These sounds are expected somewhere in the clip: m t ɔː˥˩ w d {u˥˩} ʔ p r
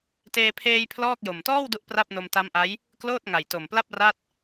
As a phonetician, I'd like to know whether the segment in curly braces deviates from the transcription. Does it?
no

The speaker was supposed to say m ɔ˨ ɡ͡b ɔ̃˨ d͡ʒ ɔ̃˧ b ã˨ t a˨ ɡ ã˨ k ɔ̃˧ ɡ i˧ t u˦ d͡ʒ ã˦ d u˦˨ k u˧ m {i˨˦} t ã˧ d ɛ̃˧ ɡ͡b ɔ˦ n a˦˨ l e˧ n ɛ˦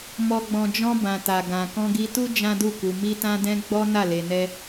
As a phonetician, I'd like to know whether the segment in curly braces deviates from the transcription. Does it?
yes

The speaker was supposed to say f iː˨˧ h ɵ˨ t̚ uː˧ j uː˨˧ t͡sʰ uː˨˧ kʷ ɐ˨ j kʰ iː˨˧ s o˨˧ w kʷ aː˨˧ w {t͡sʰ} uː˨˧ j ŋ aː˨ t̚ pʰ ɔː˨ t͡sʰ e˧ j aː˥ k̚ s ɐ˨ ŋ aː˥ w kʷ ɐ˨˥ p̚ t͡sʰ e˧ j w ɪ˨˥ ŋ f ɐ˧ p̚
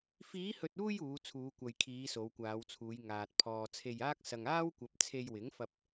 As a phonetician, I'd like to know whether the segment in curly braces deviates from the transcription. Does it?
no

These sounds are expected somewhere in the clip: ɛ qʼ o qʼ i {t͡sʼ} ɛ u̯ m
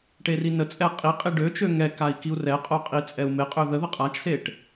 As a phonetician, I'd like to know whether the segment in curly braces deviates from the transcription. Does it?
no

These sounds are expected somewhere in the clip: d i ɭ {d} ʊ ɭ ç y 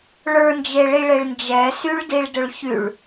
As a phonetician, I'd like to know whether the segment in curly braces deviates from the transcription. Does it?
no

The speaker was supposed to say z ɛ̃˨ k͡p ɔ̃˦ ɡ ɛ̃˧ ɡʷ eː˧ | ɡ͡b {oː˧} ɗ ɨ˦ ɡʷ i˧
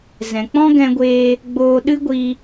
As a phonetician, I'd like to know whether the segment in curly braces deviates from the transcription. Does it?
no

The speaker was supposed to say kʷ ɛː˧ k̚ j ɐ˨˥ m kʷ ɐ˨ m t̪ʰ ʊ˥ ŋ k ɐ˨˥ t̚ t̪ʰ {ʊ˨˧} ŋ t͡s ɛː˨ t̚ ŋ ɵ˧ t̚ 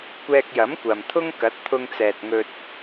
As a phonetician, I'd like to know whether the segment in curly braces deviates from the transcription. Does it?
yes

